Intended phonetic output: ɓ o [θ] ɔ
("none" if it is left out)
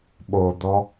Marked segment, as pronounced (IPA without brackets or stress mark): d̪